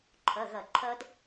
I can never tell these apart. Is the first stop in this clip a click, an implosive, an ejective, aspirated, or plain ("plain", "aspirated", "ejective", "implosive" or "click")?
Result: click